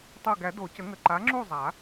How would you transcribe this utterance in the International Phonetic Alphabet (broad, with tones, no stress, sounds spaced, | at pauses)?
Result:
tˤ o˧˩ ɡ æ˨˩˦ d o˨˩˦ c ə˨˩˦ ŋ ə˩˥ ǃ a˩˥ ŋ͡ǁ u˥˩ zˤ a˨˩˦